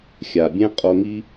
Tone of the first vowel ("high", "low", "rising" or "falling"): low